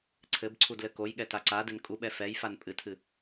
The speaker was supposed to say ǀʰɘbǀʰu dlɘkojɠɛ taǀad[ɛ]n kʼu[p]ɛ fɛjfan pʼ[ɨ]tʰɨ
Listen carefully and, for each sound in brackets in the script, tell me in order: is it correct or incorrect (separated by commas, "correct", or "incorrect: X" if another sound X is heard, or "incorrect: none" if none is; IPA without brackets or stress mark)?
incorrect: ɘ, incorrect: ɓ, correct